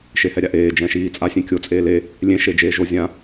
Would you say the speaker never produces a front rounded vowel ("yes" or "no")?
yes